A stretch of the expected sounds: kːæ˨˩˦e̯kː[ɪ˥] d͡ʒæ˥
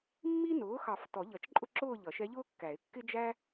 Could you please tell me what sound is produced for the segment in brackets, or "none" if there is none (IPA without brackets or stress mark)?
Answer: ɪ˥